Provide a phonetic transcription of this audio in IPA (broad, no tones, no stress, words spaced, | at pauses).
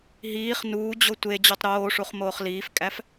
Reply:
ɦiːχ nuːd͡ʑo tʷe d͡ʑutˤɾoːʂuχ moːχliːfkʼæf